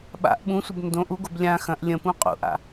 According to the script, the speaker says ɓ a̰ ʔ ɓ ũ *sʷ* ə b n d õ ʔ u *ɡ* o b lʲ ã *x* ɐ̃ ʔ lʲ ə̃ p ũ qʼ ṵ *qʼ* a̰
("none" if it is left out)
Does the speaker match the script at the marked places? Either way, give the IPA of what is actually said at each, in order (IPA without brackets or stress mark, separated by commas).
sʷ, ɡ, x, ʔ